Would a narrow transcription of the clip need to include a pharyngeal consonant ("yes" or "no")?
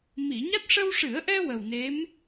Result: no